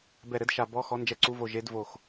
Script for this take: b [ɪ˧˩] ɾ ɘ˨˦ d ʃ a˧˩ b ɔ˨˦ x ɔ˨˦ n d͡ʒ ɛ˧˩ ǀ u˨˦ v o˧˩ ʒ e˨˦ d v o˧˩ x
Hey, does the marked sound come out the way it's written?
no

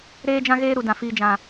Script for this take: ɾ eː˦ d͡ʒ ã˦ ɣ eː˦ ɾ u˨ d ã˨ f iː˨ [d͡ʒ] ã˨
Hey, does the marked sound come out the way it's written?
yes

